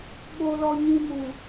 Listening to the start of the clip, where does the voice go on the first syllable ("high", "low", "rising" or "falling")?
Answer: low